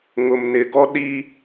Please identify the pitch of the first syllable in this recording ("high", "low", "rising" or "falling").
low